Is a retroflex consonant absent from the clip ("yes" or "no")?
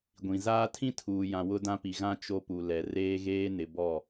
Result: yes